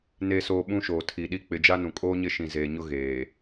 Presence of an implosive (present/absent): present